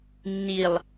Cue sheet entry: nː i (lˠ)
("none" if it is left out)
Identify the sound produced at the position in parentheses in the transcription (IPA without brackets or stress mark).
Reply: lˠ